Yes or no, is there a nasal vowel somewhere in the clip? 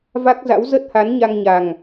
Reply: no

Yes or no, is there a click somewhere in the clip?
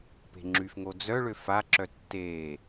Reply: yes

